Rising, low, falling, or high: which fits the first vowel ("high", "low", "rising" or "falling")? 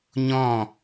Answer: falling